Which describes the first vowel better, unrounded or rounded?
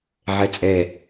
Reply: unrounded